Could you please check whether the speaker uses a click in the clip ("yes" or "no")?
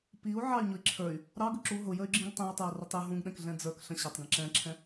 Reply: yes